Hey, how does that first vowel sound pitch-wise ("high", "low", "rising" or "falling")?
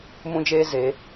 high